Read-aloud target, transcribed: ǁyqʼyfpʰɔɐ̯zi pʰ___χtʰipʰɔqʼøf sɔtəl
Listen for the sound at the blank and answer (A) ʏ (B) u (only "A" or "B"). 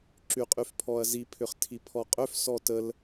A